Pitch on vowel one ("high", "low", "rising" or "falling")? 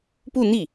falling